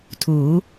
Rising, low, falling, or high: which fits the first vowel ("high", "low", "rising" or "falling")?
rising